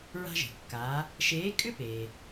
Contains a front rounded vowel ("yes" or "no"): yes